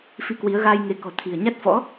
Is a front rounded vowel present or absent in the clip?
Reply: absent